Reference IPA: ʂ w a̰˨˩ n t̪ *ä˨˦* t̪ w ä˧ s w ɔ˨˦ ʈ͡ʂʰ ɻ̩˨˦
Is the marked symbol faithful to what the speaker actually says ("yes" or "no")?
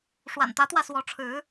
yes